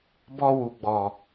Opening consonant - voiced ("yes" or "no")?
yes